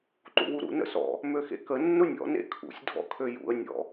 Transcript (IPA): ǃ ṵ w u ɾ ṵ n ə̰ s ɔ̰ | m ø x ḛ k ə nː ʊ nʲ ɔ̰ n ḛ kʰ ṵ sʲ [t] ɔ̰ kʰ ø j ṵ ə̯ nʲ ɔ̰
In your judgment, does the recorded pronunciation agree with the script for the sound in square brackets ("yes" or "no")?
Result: no